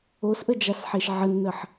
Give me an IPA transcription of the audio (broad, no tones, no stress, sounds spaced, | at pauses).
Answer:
o s ʔ ə d͡ʒ a s ħ e ʃ ʕ ə nː ə ħ